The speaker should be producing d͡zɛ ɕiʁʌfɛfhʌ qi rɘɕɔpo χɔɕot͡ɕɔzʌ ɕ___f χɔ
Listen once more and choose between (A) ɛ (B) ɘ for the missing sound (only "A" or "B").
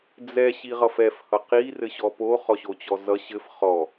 B